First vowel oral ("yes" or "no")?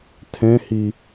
no